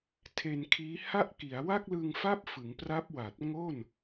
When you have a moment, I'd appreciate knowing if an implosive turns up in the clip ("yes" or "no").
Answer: no